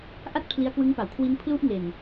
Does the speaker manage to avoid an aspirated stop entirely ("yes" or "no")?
no